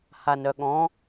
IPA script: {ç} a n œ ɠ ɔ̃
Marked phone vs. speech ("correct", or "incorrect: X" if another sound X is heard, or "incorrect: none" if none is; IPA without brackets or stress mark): incorrect: h